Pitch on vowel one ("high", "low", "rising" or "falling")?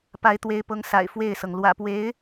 rising